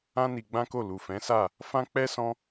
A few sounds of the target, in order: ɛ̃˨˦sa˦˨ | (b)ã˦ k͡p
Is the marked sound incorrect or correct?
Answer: incorrect